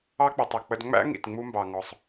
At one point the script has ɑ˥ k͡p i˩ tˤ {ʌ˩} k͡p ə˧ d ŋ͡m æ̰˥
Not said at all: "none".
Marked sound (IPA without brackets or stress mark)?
ʌ˩